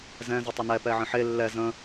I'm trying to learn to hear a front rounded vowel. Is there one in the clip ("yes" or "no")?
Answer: no